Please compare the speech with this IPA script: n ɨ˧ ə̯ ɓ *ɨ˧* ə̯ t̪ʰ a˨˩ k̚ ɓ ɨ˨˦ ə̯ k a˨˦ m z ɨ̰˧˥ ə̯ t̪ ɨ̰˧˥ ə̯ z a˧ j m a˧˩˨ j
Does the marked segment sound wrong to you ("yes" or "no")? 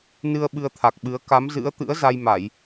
no